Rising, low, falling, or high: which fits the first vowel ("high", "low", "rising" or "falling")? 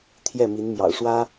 falling